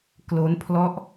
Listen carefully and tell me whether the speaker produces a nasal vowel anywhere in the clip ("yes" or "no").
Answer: no